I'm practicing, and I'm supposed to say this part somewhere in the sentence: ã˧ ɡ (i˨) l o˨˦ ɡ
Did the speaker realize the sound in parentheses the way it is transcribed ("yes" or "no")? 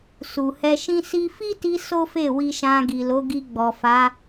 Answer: yes